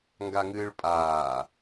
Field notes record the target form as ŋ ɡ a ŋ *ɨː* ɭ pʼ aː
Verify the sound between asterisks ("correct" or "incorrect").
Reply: correct